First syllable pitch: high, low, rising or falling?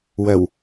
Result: low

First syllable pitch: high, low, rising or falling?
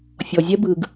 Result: low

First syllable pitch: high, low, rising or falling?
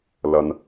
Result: low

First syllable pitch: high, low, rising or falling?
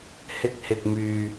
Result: high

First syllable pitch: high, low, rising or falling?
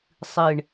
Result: low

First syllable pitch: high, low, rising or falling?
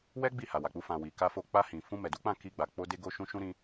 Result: high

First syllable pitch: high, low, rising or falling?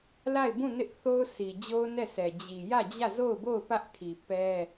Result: falling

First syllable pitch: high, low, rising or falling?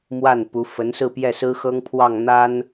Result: falling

